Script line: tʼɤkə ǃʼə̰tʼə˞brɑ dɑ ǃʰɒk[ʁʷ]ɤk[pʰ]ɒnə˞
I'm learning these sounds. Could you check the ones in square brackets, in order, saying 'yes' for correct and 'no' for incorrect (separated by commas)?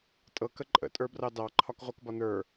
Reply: yes, no